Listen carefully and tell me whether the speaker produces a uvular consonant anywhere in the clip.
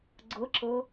no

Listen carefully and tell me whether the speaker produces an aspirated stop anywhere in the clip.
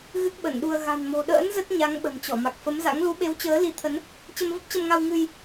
yes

